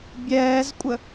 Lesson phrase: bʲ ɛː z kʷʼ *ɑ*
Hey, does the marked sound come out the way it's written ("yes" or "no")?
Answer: no